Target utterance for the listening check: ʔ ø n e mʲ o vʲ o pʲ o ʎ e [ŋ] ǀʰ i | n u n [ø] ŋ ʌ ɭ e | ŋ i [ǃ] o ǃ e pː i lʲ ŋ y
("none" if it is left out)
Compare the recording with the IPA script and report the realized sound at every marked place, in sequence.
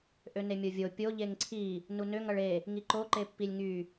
ŋ, ø, ǃ

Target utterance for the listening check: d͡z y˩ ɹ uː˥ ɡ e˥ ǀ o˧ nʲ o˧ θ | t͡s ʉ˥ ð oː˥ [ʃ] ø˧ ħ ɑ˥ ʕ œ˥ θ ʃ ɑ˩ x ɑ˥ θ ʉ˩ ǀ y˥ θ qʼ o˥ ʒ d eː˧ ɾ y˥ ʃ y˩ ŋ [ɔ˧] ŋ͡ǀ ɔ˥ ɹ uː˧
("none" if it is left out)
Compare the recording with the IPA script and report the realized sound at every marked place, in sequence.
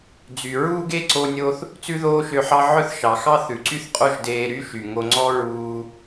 ʃ, o˧

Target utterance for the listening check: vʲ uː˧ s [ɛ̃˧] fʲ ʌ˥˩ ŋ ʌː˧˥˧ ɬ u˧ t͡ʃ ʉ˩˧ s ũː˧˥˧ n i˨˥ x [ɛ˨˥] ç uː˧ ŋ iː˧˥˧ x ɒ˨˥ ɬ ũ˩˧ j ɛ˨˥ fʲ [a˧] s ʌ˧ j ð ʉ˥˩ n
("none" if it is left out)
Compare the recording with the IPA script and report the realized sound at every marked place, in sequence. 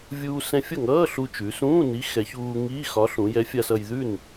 ɛ̃˧, ɛ˩˧, a˧

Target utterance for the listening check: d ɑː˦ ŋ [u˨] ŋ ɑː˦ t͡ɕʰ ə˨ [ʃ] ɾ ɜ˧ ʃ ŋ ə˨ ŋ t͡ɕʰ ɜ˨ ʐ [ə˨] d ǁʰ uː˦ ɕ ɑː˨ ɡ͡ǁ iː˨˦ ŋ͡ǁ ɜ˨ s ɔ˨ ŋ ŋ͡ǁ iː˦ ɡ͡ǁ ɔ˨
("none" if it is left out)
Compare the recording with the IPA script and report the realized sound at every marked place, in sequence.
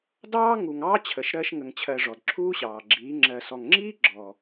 u˨, ʃ, ɔ˨

